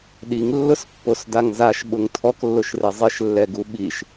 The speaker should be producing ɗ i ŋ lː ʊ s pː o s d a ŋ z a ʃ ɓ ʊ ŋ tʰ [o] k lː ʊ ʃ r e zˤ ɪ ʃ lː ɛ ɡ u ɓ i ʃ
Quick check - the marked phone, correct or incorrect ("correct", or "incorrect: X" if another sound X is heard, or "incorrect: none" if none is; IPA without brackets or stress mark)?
incorrect: ɔ